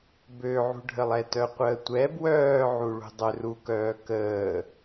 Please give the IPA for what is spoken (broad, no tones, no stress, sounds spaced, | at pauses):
b ø ʕ ṳ ɖʱ ə lˠ ɛ t œ qʷ əː tʷ ɛ b w œː ʕ u ɭ ṳ dˤ ø r u k œː k əː